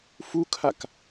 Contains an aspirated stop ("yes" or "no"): yes